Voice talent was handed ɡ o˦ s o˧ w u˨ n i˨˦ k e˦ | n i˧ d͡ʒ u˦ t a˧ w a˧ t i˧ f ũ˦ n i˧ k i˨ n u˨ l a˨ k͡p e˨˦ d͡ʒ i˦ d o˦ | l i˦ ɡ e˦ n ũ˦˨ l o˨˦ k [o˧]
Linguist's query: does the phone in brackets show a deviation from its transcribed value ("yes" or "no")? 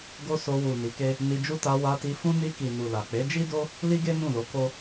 yes